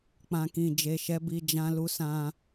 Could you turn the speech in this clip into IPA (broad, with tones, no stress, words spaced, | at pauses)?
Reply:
k͡pã˨kĩ˨d͡ʒe˨ʃɛ˨˦ bi˧d͡ʒã˦lu˧ sã˧